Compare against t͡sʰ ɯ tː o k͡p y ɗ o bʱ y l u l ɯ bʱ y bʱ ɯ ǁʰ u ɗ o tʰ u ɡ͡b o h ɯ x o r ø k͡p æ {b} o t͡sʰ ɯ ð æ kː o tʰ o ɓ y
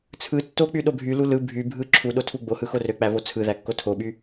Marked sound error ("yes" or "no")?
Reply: yes